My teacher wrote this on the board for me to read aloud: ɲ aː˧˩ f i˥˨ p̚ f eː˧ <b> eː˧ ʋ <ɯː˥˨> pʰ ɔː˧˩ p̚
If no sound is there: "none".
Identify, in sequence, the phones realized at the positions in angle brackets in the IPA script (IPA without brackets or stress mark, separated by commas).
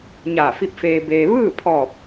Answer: b, ɯː˥˨